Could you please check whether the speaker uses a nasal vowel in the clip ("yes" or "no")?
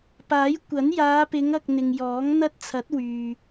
no